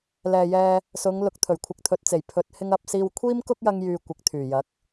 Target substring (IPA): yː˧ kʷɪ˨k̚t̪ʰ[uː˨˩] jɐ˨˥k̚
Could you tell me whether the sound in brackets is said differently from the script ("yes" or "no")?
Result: yes